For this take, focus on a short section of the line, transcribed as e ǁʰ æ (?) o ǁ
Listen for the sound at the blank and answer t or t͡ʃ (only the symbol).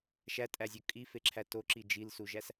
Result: t